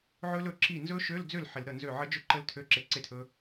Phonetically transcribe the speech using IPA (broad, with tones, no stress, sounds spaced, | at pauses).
ʕ ɵ˦˥ l ɵ˧˩˧ ǁ i˥˩ n z ɵ˦˥ ʃ ø˧˥˧ l d͡z ø˥˩ l ħ ɪ˧˩˧ l ɾ ə˥˩ n z ø˥˩ ʕ ə˦˥ d͡ʒ ɵ˥˩ ǃ ə˦˥ l tʰ ø˧˥˧ ǁ e˧ ǀ e˥˩ tʰ ɵ˦˥